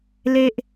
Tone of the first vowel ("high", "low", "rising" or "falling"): high